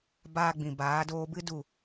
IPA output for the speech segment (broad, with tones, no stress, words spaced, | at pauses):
baː˧ɡ͡bĩ˨baː˨˦ doː˧bɨ˦du˦˨